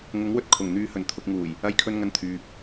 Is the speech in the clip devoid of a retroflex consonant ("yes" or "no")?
yes